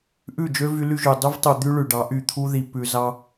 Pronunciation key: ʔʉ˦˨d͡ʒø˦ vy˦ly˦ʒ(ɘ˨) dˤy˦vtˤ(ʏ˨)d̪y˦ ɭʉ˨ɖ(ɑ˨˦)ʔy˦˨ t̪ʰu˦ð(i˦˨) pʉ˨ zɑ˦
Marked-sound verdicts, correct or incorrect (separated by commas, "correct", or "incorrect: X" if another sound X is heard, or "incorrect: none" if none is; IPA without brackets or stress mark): incorrect: ʉ˨, incorrect: u˨, correct, incorrect: i˨